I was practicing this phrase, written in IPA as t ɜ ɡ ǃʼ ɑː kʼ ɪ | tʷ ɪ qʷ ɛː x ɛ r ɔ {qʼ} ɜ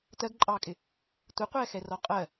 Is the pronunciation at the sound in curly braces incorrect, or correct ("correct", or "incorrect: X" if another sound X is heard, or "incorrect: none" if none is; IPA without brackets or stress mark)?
correct